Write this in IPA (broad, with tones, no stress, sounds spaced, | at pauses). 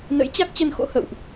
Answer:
n ə̰˧˥ j t͡ɕ a˦˥ k̚ t͡ɕ ə˧ n x o̰˧˥ h ə̰˧˨ w ʔ